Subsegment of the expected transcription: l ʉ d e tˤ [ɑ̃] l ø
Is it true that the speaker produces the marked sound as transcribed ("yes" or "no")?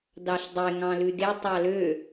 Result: no